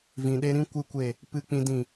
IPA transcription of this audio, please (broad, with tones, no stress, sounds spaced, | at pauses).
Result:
v ĩ˨ ɗ e˧ ɾ ĩ˦ kʷ ɨ˦ kʷ e˦˨ | p ɨ˦ k͡p ĩ˦ d ĩ˦˨